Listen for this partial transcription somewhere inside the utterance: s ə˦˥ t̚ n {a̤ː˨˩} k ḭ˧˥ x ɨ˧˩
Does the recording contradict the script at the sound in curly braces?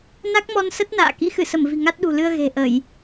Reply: yes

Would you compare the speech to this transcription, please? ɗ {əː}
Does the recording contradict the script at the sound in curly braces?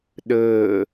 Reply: no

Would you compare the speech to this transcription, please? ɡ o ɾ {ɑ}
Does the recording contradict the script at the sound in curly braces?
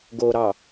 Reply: no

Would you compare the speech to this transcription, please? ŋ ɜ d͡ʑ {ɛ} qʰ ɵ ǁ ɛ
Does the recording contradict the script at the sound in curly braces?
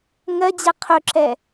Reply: no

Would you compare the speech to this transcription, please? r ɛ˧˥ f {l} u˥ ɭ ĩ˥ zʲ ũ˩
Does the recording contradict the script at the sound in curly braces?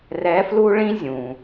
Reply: no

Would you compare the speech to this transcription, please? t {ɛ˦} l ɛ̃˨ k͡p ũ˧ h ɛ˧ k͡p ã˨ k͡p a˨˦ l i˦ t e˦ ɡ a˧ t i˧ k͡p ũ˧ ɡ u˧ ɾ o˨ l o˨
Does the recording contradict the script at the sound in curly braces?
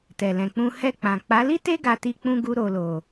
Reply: yes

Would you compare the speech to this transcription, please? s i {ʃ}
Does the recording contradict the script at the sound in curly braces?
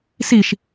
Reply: no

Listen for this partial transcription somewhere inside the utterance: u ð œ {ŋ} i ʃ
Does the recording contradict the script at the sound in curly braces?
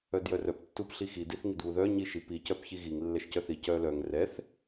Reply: yes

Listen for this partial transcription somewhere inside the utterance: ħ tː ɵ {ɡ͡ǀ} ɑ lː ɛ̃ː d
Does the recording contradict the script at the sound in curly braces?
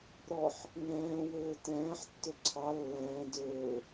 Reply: yes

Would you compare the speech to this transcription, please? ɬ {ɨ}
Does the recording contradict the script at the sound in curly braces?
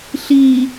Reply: yes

